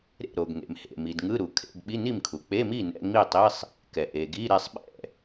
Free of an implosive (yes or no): no